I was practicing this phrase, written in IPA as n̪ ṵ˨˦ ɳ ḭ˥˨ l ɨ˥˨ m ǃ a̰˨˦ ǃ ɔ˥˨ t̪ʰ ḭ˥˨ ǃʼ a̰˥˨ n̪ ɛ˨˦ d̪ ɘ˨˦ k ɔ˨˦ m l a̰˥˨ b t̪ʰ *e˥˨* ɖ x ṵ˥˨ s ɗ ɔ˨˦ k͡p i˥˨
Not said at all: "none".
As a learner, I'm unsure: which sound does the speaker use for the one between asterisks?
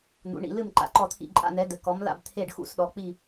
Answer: e˥˨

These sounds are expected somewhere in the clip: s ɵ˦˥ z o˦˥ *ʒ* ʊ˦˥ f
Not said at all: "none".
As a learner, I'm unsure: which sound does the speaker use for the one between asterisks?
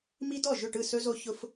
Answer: ç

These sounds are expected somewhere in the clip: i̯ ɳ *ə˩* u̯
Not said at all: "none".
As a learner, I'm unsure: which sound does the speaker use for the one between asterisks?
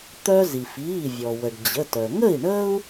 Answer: ə˥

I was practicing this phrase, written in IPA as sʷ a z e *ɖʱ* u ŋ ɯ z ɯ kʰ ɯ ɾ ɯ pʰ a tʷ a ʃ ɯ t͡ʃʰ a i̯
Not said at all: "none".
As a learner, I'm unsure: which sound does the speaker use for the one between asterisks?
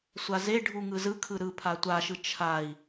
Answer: ɖʱ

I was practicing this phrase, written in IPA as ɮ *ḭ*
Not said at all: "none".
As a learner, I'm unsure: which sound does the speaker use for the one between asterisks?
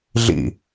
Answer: ḭ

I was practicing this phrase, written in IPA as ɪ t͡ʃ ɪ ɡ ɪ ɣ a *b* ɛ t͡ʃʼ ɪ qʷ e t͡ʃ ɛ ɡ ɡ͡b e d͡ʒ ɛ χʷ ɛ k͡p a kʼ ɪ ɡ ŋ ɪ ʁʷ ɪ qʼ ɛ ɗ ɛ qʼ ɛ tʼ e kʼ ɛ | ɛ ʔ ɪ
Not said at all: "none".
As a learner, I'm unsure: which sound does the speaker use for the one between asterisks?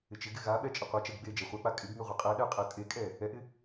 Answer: ɓ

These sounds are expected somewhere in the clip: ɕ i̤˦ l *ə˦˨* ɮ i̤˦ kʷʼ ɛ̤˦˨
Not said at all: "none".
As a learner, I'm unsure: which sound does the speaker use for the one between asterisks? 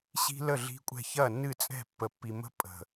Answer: ə˦˨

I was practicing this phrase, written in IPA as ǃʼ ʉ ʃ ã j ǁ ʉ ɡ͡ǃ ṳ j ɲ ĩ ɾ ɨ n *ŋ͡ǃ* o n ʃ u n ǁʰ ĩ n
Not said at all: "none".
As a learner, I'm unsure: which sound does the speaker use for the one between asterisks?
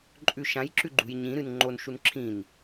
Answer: ŋ͡ǃ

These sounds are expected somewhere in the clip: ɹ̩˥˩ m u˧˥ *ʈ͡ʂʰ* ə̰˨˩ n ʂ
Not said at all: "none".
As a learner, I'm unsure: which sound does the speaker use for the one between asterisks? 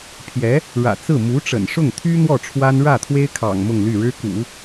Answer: ʈ͡ʂ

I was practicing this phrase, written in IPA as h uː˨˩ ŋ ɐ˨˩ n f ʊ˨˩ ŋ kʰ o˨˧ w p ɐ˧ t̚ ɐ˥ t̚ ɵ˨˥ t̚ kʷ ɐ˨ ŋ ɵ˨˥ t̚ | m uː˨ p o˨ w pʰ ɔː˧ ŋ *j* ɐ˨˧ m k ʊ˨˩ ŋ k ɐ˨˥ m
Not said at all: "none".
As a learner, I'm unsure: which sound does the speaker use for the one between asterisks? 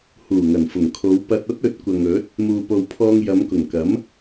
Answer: j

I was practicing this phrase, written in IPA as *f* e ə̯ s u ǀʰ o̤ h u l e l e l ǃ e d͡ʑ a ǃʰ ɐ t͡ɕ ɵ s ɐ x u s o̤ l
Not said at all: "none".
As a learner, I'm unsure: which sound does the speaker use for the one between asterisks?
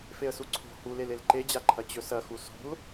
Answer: f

